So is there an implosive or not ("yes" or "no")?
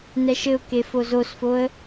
no